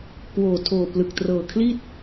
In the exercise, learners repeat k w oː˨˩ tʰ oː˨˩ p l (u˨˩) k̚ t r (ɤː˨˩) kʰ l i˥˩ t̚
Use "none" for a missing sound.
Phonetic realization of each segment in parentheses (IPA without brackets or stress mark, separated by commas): ɯ˨˩, ɤː˨˩